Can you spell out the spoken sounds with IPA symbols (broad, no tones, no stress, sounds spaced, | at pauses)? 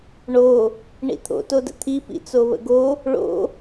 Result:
ɳ o | ɳ ḭ t̪ʰ o̰ t o d ə̰ t̪ʰ i p ḭ t͡s o β ə̰ ɡ o | ɭ o̰